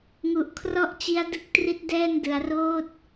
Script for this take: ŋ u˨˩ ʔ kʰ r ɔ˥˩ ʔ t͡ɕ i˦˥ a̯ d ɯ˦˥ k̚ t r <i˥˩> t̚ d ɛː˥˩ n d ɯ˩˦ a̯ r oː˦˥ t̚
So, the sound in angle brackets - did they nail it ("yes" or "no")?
no